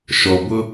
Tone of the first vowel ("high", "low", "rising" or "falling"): low